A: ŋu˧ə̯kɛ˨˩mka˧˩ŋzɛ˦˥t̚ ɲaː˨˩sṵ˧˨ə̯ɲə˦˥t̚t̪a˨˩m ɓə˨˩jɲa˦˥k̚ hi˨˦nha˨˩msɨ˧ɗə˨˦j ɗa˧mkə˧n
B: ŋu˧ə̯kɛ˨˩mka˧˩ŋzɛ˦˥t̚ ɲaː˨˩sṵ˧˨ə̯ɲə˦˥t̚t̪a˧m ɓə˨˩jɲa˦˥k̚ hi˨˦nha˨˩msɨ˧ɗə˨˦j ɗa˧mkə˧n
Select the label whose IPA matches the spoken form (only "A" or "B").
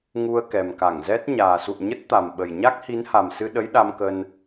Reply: A